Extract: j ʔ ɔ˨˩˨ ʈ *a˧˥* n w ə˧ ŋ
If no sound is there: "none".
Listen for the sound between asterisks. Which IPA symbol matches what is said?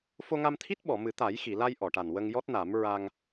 a˨˩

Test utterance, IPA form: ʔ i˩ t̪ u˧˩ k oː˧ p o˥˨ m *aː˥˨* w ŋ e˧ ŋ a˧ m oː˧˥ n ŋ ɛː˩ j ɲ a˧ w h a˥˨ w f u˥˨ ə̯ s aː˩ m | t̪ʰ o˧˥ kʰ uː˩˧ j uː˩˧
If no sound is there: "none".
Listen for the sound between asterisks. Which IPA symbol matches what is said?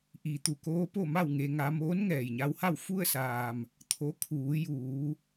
a˥˨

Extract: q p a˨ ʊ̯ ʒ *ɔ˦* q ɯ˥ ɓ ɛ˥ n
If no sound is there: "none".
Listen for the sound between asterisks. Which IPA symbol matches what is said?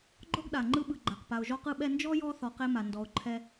ɔ˥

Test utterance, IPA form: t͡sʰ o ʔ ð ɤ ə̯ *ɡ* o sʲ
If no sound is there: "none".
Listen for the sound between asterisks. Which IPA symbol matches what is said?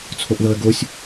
ɡ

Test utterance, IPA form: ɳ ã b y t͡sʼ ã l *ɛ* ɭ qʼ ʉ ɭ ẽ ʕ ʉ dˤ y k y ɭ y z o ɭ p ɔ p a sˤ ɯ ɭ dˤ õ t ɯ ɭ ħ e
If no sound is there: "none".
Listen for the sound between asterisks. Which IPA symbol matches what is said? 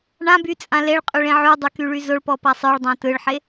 e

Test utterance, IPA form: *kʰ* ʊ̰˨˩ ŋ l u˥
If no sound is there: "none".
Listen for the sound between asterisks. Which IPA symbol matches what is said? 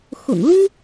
x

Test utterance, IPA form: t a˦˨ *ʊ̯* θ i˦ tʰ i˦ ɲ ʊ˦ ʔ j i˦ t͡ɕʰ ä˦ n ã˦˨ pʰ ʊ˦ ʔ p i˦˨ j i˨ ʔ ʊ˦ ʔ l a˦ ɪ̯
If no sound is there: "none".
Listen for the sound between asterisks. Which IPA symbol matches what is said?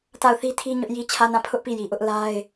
ʊ̯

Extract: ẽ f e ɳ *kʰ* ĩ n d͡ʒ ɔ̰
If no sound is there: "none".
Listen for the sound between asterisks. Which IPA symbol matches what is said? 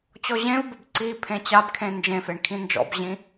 kʰ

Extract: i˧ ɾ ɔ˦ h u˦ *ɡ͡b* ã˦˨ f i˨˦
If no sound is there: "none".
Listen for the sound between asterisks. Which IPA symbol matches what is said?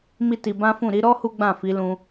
ɡ͡b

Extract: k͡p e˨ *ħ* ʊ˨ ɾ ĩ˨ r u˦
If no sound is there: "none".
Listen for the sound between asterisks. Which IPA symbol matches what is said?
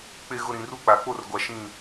ɣ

